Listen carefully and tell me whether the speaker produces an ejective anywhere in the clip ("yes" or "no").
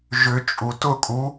yes